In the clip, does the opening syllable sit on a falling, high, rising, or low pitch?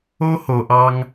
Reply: high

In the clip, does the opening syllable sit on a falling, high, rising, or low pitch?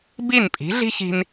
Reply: falling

